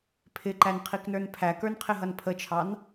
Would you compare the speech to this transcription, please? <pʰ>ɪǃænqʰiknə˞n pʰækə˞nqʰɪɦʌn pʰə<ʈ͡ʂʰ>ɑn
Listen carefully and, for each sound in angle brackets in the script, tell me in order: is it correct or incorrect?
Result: correct, incorrect

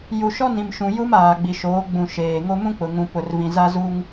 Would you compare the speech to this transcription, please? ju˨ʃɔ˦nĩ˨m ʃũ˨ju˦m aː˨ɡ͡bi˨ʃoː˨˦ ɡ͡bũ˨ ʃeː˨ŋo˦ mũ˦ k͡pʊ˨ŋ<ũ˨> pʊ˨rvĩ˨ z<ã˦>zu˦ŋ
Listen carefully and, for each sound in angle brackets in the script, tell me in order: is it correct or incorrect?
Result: correct, incorrect

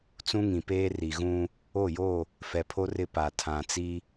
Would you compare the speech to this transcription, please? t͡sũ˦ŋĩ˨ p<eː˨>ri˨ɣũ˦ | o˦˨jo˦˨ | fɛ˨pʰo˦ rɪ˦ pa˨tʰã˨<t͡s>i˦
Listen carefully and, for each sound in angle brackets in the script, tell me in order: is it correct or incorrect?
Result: incorrect, correct

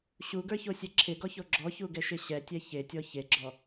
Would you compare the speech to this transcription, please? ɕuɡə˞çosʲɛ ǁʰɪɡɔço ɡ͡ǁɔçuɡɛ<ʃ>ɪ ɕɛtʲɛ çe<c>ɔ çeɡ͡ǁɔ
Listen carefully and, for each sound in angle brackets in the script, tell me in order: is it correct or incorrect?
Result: correct, incorrect

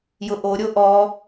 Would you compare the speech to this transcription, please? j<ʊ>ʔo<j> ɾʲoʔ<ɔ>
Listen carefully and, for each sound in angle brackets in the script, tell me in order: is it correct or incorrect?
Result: correct, incorrect, correct

